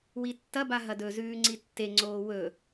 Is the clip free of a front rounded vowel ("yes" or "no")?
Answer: yes